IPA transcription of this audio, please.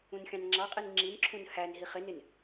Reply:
ũ n xʲ ɑ̃ n ŋ͡ǁ ɑ qʼ i n ŋ͡ǁ i n ǁʰ ũ n h æ n ɦ i χ ɪ n ɪ n

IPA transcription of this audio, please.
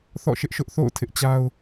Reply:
θ ɔ̰˦˨ ʃ ɪ˦ ʔ ʃ ʊ˦ ʔ θ o̰˦˨ ʊ̯ tʰ ɪ˦ ʔ t͡ɕ a˦ ʊ̯

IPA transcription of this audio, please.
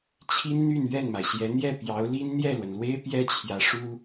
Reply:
t͡ɕʰ i˥ n n̪ y˥˧ n ɥ ɛ˥˩ n m a˩ ɪ̯ ɕ j ɛ˧˥ n̪ j ɛ˥˩ p j ɑ˧˥ ʊ̯ l i˥ n n̪ j ɛ˥˩ l w ə˩ n l w e˥ ɪ̯ p j ɛ˥ t͡ɕʰ j ä˧˥ ʂ u˥

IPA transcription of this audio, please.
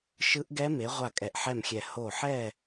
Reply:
ʃ ɯ˦˥ ʔ ɡ ɛ˦˥ m e˨˦ ʁʷ a˥˨ kʼ ɛ˧˩ ʔ ħ ɛ˥˨ m xʲ ɛ˧˩ h o˧˩ ħ ɛ˥˨

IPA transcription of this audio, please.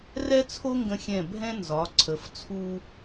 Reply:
r ɛ˥ t͡sʰ o˥ ŋ ɡ ə̃˧ xʲ ɛ̃˧˩ bʱ ɛ̃˥ n z ɒ˩˧ ǀʰ ə˩˧ f t͡sʰ u˧

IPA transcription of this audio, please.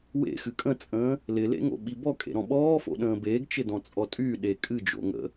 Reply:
w ḛ x ɨ kʼ ə̃ t͡sʼ ə̃ː | l ɪ l ḛ ŋ o̰ ɓ i b ɔ kʼ ḛ ɾ ɔ̃ ɓ ɔː f o̰ ɗ ə̃ː b eː ɡ t͡ʃ ɪ d ɔ̃ t͡sʼ ɔ tʼ y ɗ e kʼ ɨ d͡ʒ o̰ ŋ ə̰

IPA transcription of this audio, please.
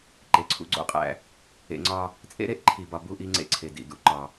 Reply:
ǃ e˨ ǀʰ ṵ˦ ɡ͡ǀ o̰˦ qʼ æ̰˦ | ḛ˨ ŋ͡ǀ ɒ˦ | t͡sʼ ḛ˦ ɾ e˦ ʔ ǃʰ i˨ b ɒ˨ b u˦ ʔ i˦ ŋ͡ǀ ḛ˦ ǀʰ e˨ d ḭ˨ d ṵ˦ ǃ ɒ˦

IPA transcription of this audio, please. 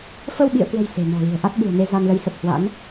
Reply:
f ə˧ w ɓ ḭ˧˨ ə̯ k w ə̤˨˩ j s e̤˨˩ n ɔ̤˨˩ l i̤˨˩ ə̯ ʔ a˦˥ t̚ ɓ ṳ˨˩ ə̯ n e˧ z a˧ n l ə˨˦ j s ə˨˩ p̚ h w a̰˧˥ n

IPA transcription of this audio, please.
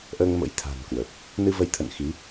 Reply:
ʔ əː˧ ŋ m ə̰˧˥ j t̪ʰ a̤˨˩ n k w ə˨˩ p̚ | n ɨ˧ v ə˨˦ j t̪ʰ ə̰˧˨ n x i˨˦

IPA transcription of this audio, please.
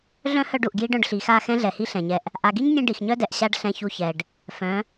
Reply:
ɮ œ̃˦ h œ˧ ɖ u˨ ʔ ɡ j i˦ ɖ œ̃˧ ɖ ɬ i˨ x a˦˨ x ɛ̃˦ ɮ ɛ˨ h i˦ ɬ ɛ̃˨ ɲ ɛ˦ ʔ | ʔ a˨ ɡ i˦ ɲ nʲ ɛ̃˧ ɖ i˨ x ɲ œ˦ d ɛ˨ ʔ ɕ a˦ ɖ ɬ ɛ̃˧ ç u˧ ç ɛ˨ ɖ | f œ̃˨˦

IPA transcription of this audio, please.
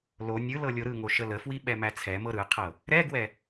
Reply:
l o nʲ ɯ l ɤ lʲ o ɾ ɯ ŋ o ʃ ə l ə f w i ɓ ɛ m æ t͡sʰ ɛ m ɤ ɾ ɯ qʰ ɤ | ɾ ɛ ɡ w ɛ

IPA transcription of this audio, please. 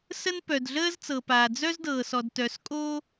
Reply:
s ə˥ n p œ˩ d ɮ əː˥ z t͡s ɤ˩ p aː˩ d͡z œ˥ z d ɤː˩ s ɔ˩ d t œ˩ s kʼ o˥

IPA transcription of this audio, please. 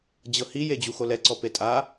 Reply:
d͡ʑ ɤ h i j e d͡ʑ u x o l ɛ ǀ ɔ p e tʼ a

